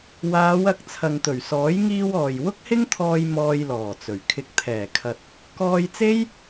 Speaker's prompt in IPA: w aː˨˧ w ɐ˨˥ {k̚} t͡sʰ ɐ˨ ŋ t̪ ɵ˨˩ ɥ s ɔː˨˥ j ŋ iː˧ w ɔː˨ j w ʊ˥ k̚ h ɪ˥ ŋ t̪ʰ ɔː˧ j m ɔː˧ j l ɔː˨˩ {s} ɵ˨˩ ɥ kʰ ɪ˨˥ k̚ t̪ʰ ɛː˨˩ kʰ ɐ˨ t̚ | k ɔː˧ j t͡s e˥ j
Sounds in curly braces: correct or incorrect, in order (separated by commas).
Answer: correct, incorrect